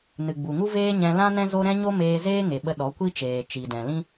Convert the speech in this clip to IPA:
nɨ˨ɡ͡bu˨ŋu˦ veː˦ɲɛ̃˧lã˦ nɛ̃˦zo˦ɾɛ̃˦ɲo˦ meː˧zeː˦ŋe˨ɓə˧ ɗɔ˨˦kʷi˦t͡ʃeː˨ t͡ʃi˨dɛ̃˨lĩ˦

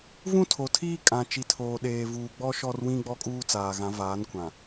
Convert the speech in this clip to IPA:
vũ˦tʰo˨tʰiː˦ kʼã˨ t͡ʃi˨tʰoː˨ ɗeː˨vuː˨ ɡ͡bɔ˦ ʃɔ˦rwĩ˦ ɡ͡bɔ˦kʼuː˦t͡saː˨ɣã˨˦ vaː˨˦nkʷã˨

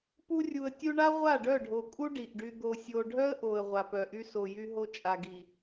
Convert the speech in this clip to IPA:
pu˦ rʲu˨ə̯tʲu˧ɳa˦ ʁʷa˦˨ɖœ˦˨ɖʱo˨kʼu˦ ɖi˨ʔɖy˧ d̪o˨sʲo˨ɖʱœ˦ə̯ ʔo˨ə̯ ʁʷa˨pœ˨ʔy˧ so˨jy˧ ɦo˧t͡ʃʼa˨ɡi˨

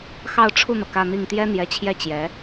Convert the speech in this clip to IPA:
xɑ˥˧ʊ̯ʈ͡ʂʰu˥˩n̪ɤ˩ kä˥˧n̪i˥˩ŋ t̪jɛ˥n̪jɛ˧˥t͡ɕʰjɛ˥˩ t͡ɕjɛ˧˥

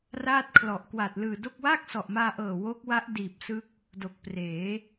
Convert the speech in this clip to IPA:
raː˥˩t̚kʰlɔ˨˩ʔ kwaː˨˩t̚lɯː˨˩do˥˩k̚ waː˥˩k̚sɔ˨˩ʔmaː˧ʔɤː˨˩ wo˦˥k̚wa˦˥ʔ diː˨˩p̚sɯ˦˥k̚ | do˨˩k̚ preː˩˦

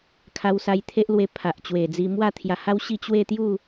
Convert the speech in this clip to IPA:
kʰa˧wsa˧jt̪ʰe˦ʔlwe˧ pʰa˨ʔt͡ɕwe˨˩d͡zi˧ mwa˥˧t̪ʰja˧ha˦wɕi˥˧ t͡ɕwe˥˧t̪ju˥˧

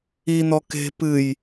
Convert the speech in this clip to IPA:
in̪ɔ ke̤ pɨj

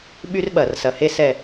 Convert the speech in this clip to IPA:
ɓy˥rɓɐ˧˩rsɐ˧˩he˥ sɛ˥˧

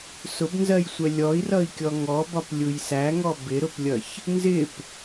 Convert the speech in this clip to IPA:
sʊbnzɜjsʷɛ lʲɔi̯rʌi̯kʲɔ ŋɔbɒplʲuj sæŋɔ bɪɾʊplʲʌç | nzɪp

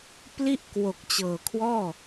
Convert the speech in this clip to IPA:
pli˥˩ʔkwo˨˩k̚t͡ɕɤː˨˩kʰwɔː˥˩

